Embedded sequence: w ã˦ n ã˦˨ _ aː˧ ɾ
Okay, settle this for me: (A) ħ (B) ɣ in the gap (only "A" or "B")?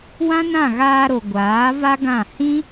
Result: B